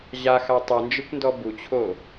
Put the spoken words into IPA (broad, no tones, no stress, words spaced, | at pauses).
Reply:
ʑaxa tˤɯnd͡ʒɯkʷndɔ but͡ɕʰo